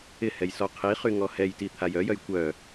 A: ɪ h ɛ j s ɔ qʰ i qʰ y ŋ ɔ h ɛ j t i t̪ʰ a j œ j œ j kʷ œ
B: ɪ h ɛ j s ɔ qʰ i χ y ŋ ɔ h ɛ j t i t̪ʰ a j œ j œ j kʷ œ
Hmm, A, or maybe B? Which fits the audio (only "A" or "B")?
B